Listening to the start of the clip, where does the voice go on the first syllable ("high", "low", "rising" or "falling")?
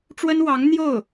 high